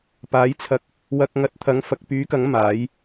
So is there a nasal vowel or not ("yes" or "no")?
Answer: no